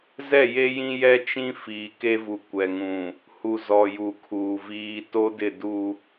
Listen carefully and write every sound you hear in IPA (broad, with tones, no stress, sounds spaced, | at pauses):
z ɛ˦˨ j e˦ j ĩ˦ j ɛ˦ t͡ʃ ĩ˦ f iː˨ k e˦ v u˨ kʷ ɛ˨ ŋ ũ˨ | h u˨ z ɔ˨ j u˨ kʰ uː˨ v iː˦ t o˦ d ɪ˦˨ d u˦